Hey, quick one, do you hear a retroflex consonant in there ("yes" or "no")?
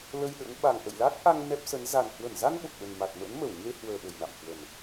no